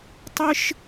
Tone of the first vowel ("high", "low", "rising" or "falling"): high